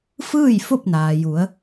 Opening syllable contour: falling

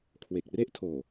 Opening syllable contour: low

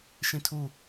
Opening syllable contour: falling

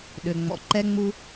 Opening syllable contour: low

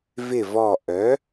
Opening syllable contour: falling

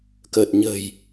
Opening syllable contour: low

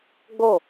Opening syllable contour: falling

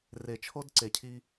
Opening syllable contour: low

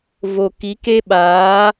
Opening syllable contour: low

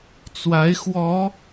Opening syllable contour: rising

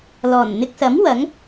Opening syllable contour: low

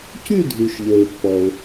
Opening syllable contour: falling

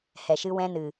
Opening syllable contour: low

